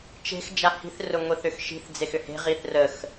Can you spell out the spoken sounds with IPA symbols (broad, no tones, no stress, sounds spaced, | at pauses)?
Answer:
t͡ʃ e̤ x d͡ʒ a h i̤ θ r ʊ ŋʷ i θ ʏ x ʃ i̤ θ d͡z e x ʏ h e̤ ʁ i θ r ə x